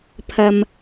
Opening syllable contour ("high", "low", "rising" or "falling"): low